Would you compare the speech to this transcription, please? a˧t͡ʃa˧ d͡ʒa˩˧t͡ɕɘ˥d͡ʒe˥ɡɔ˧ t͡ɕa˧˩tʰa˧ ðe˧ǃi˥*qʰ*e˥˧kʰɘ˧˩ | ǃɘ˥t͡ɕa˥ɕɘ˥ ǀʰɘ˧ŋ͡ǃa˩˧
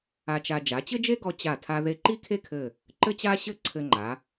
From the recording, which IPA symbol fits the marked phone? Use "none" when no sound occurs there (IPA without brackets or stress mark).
kʰ